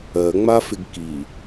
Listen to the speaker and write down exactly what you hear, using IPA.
ɜ ŋ͡m a f ɪ ɡ k i

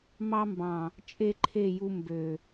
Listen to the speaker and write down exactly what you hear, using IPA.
m ɑ˦ m b ɑ̃˨ | t͡ʃʼ e˦ ǃʰ e˦˨ j u˧ m b ø˨

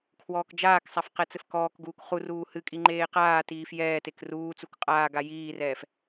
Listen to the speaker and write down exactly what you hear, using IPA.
kʰ w ɔː k d͡ʒ aː k sˤ a f q ɛ t͡s ɘ f k ɔː k ɡ uː k χ u r uː h ɨ kʼ i ŋ͡ǃ eː q aː t iː f j ɛː t e k r uː t͡s u k qʼ aː ɡ a j iː r ɛː f

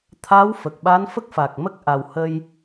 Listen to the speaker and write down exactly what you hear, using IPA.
t̪ʰ a˧˥ w f ə˨˩ k̚ ɓ a˧˥ n f ə˦˥ k̚ f a˨˩ k̚ m ə˦˥ k̚ ʔ a˨˩ w h ə˧ j

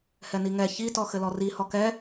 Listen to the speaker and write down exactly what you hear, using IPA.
h ɛ n i ŋ ɛ ç i t ɔ x ɘ l ɔ r i h ɔ k ɛ

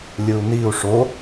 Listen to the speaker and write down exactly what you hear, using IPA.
lʲ ɯ u̯ n i u̯ ʂ o

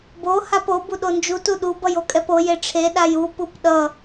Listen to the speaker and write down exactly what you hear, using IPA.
b o h a p o b u ɗ o n d͡ʒ u t u ɗ u b ʌ j o kʼ ɛ p o j e ʈ͡ʂʰ e ɗ a j u p u p ɗ ʌ

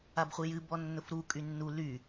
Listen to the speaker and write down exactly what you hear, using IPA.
a b χʷ i j ɨ b ɔ nː ʊ f ɾ u kʼ y nː u l y

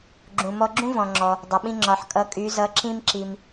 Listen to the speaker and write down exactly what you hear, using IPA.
ɡ͡ǁ ũ˩ m ɔ˧ ɡ͡ǁ ũ˥ v ɔ̃˩ ŋ͡ǁ ɔ˩ | dˤ ʌ˩ ɓ ĩ˧ ŋ͡ǁ ɒ˩ ħ kʼ ʌ˩˧ kʼ y˩˧ z ʌ˩˧ ǁ ĩ˧ m ǁ i˩ m

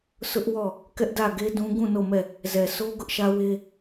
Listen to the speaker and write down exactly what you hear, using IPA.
s ʊ˦ ʔ w ɔ˦˨ | k ɛ˦ ʔ d ä˦˨ ɡ e˦ d ũ˦ ɡ ũ˦˨ n o˦˨ m ɛ˦˨ | z ɛ˨ sʰ o˦ ɡ ʊ˦ ʔ ʃ ä˦ w e˦

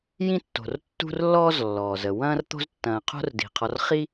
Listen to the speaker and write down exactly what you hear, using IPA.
j ĩ˦ tː o̤˩ r tː ṳ˦ r lː ɔː˦ z lː ɔː˩ z ə˩ w ɐ̃ː˦ r t̪ o̤˦ z tː ɐ̃ː˨ qʰ o̤˦ r d i̤˩ qʰ ɔ˨ r χ i˦

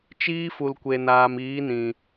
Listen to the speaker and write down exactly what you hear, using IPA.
t͡ʃ iː˦ f u˨ l kʷ e˨ n aː˨ m iː˨˦ n ĩ˨

